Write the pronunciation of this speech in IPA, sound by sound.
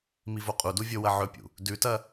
mivoqʼudu vʲowɐʕɵpʲṵ | dʉtɐ

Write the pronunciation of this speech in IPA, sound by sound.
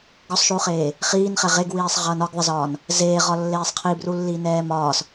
ɡɔsˤʃuːχeː | χiːnχɛ ʁeɡwiːsˤʁʌːn ɒɡðˤɪzɒːn | zeːʁɒlːeːsˤ qʰibrulːiːnɛː mɒːs

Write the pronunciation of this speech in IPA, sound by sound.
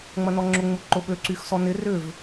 ŋ͡mɐnɔŋ͡ǁʊ ŋ͡muǃʊɓø ǀyxsɔnɪ rʏv

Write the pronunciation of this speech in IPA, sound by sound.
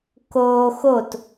koː xot

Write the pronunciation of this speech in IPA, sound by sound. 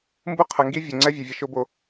mbu˦ qʰə˨ŋɡi˦vʲø˨ŋ͡ǀɛ˦ vʲɯ˨vʲə˦ʃo˦ bo˨

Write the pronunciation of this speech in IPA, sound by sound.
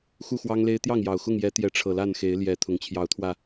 xu˥˨xwɑ˦ŋle˦ɪ̯ t̪jɑ˥˨ŋjɑ˨˩ʊ̯ xʊ˥˨ŋ jɛ˨˦t̪jɛ˨˦ ʈ͡ʂʰɤ˨˩la˥˨nxe˨˦ɪ̯ljɛ˨˦ t̪ʰʊ˨˩ŋt͡ɕʰjɑ˨˦ʊ̯t̪ʰwä˧

